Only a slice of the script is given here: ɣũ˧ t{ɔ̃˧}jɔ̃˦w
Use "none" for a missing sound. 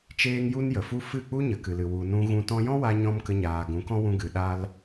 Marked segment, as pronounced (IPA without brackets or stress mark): ɔ̃˧